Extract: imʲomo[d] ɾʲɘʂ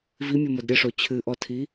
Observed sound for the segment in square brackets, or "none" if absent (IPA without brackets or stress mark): d